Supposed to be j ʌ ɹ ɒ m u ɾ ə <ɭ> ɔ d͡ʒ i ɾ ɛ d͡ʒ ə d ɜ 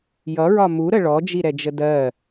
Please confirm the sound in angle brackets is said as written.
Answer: yes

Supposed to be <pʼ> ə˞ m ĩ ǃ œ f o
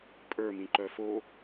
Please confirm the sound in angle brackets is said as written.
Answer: yes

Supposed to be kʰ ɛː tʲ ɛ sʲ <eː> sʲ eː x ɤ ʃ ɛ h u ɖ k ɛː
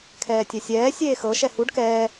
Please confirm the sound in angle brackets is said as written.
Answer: no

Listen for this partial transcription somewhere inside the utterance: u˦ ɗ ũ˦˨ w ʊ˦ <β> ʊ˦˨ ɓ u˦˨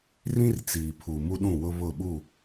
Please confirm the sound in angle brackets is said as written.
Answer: yes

